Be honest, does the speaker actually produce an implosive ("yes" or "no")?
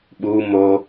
yes